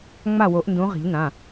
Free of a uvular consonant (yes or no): no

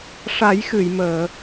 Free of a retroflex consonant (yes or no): no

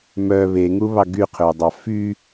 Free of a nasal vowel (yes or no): yes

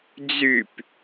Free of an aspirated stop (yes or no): yes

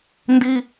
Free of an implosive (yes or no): yes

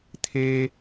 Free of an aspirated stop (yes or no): no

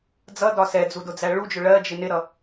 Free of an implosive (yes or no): yes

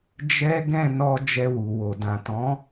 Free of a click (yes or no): yes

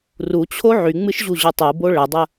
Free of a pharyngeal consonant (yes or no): no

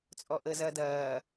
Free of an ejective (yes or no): no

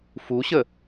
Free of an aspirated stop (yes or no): yes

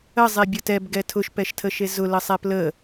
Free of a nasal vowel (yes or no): yes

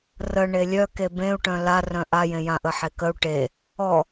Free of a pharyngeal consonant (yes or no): no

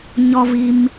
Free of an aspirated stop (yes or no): yes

